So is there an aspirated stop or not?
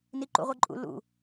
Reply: no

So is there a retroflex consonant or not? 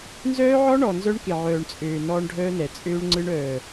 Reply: yes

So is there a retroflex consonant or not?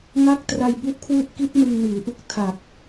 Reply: no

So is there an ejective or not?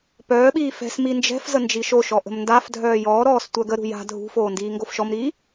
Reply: no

